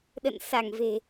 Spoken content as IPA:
ɗə̰˧˨nsa˧˩ŋve̤˨˩

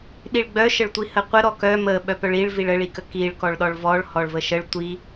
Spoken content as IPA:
ɗiɭɡ͡bœʃəɭtʷi həqʷə ɾɔkœ mə ɓœpœɭiɭ viɭəɭikə kiɭ kɔɭɗɔɭvɔɭ hɔɭvəʃəɭ tʷi

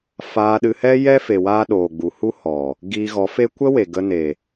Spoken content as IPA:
faː˧ɗɨ˧hɛ˦ jɛ˦fe˨waː˧ ɗoː˨ɡ͡bu˨hu˦ hɔ˨ | ɡiː˧ɣɔ˨˦fe˦ kʷə˦we˨ ɡə˧ne˨

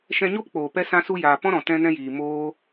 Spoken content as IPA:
ʃɛ̃˧ɲo˦pk͡poː˨ pɛ˧ sã˧su˧jaː˨ pɔ̃˦ɾɔ̃˨ tɛ̃˧nɛ̃˧jiː˨ moː˦

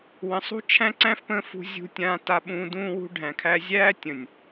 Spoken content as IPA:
wə̃˨˦sˤ ṳ˦t͡ʃʰæ̃˦ ǀæ̃˦fpə̃ː˧fṳ˧ zʲṳ˧tʲãː˧ta˧ɓũː˧ dũː˧wṳ˧ɖʱæ̃˨kʰæ˧ zʲæː˦tʲə̃˨nʲ

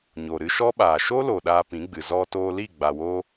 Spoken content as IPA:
ɲo˨ ɾɨ˧ʃɔ˦ɓaː˨ ʃo˦lo˨ ɗaː˧pĩ˨˦ɡ͡bɨ˨ zɔ˧toː˧li˦˨ ɡ͡ba˨woː˧

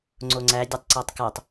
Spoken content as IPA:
ŋ͡ǀoŋ͡ǀæ dʲɒtˤǀætˤkætˤ

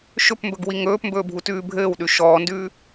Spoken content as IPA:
ʃɵpmbɵɡ wiŋɵːpmbɵː bʱutʉːbʱɘːwɗʉ ʃɔːndʉː

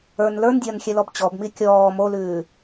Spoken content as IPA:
ə˞n lə˞ndʲɐːn xʲɛlɔbt͡ɕɔbmi kʲɔː molʉː

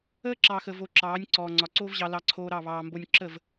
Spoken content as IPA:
əː˦ǁɑː˨xə˨ vo˧ǁɑː˨˦nʲ ǀɔː˨ŋ͡ǀɒ˨ǀoː˦vʑɑ˧ lɑ˧ǀʰoː˧ɾɑ˦˨ βɑː˨mbo˧nʲ ǁə˦˨v

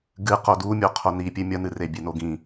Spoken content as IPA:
ɡɨqo du mʲoqʰonipʲe mʲɐnɨre bʲenoɡĩ

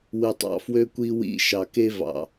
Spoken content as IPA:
wɯ˨tˤɑ̰˨fwø˦ kʷi˦wḭ˦˨ ʃɑ˨ke˦vɑ̰˨

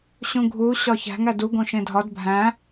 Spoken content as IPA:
ɕũɡʱu ɕɒçæ̤ŋ ædu ɡõʃẽdʱɒd bʱæ̃

